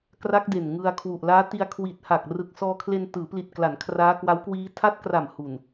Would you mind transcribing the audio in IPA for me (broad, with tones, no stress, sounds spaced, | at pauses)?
k r a˦˥ k̚ d e˨˩ n ŋ ɯ˧ a̯ kʰ w u˨˩ ʔ l aː˦˥ t i˧ a̯ kʰ w i˨˩ t̚ h a˨˩ k̚ r ɯ˨˩ k̚ s ɔː˧ kʰ l e˧ n t ɯː˩˦ p l i˨˩ t̚ k l a˩˦ n kʰ r aː˦˥ k w a˦˥ w k w iː˦˥ tʰ a˦˥ t̚ k r a˨˩ m h u˨˩ n